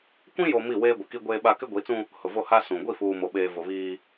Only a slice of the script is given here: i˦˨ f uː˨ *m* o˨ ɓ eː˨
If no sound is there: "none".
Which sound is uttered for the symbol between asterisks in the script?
m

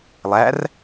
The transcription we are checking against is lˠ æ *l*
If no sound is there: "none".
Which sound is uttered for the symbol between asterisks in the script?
r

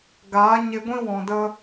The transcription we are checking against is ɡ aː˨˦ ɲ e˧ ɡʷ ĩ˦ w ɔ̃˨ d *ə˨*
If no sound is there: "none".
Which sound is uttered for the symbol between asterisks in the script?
ə˧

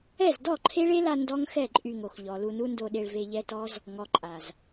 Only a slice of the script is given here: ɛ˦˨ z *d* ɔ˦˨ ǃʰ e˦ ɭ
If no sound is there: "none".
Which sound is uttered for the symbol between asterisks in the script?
d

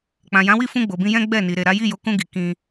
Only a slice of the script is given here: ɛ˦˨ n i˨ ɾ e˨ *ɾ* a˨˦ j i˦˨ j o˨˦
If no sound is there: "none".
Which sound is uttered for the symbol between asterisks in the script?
ɾ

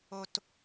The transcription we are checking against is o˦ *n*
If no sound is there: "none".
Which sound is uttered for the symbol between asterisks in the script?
t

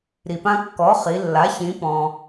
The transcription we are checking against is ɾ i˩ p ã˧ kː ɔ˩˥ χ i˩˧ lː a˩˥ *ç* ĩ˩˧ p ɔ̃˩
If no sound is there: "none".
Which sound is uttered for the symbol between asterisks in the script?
ç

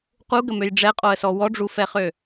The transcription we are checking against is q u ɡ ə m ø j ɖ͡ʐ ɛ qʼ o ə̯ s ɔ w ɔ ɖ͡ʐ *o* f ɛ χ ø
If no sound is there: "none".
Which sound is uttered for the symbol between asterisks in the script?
u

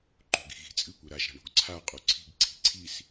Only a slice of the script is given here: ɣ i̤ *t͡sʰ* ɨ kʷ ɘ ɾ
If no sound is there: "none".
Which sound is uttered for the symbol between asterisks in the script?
t͡sʼ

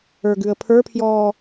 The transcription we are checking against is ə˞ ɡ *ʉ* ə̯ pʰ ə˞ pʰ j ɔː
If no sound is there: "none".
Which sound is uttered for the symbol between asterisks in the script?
ʉ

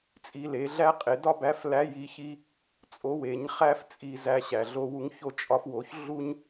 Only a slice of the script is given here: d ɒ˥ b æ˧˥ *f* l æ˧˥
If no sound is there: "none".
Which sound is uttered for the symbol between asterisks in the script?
f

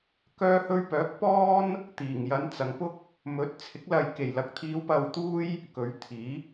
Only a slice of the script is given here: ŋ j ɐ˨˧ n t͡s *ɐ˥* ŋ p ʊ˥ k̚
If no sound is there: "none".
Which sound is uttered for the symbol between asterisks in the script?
ɐ˨˧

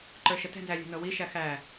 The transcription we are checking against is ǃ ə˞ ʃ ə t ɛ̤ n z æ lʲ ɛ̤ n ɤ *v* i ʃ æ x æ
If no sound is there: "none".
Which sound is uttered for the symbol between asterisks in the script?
w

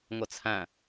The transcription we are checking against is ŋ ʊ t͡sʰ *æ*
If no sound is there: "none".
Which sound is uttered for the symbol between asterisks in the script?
æ̃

